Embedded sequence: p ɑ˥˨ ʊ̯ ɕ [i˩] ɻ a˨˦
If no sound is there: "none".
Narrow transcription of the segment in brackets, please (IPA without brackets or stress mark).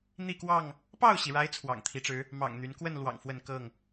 i˩